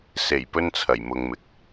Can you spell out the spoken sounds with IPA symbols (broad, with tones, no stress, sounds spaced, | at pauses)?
s e˨˩ j p ɵ˥ n t͡sʰ ɐ˨˩ j m ʊ˨ ŋ m ɪ˨ k̚